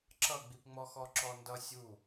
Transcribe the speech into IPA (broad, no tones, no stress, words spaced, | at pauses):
ǁʌɡ͡bipŋ͡mɔ xɔǁɔndʌ sʲu